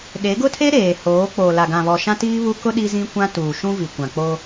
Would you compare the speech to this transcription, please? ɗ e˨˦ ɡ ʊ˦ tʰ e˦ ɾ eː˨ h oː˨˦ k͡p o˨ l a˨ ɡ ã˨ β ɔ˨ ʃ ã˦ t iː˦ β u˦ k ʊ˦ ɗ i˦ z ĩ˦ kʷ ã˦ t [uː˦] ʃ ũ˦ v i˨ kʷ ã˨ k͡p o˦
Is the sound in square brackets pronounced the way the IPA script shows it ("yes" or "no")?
no